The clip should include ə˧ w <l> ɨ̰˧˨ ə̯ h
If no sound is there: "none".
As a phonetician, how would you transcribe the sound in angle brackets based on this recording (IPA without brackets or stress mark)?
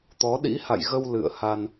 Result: l